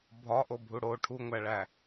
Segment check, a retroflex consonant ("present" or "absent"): present